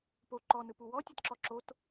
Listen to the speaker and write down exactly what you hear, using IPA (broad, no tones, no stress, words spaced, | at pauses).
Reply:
po ǃɔnɯpu wɔtʲɤtǁɔ ǁot